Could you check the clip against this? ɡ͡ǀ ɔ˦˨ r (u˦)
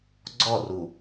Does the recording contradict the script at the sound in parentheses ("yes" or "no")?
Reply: yes